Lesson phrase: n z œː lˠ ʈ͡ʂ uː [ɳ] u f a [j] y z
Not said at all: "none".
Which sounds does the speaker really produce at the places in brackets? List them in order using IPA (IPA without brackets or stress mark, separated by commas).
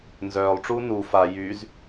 n, j